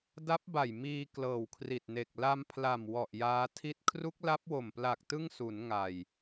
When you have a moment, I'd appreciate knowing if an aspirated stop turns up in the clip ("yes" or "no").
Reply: yes